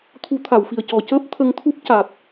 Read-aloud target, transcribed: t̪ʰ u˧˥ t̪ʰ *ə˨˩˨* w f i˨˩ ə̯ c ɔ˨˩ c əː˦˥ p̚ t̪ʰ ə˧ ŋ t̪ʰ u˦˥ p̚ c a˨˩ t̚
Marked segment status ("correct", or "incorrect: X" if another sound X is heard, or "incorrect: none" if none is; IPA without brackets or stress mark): incorrect: a˨˩˨